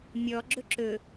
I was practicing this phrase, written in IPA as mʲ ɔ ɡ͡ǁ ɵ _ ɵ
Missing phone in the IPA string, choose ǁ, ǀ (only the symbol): ǁ